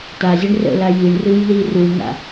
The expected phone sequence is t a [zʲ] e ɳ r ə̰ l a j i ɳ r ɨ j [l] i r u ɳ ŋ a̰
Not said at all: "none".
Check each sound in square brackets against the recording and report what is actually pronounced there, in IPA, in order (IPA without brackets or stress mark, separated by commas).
zʲ, l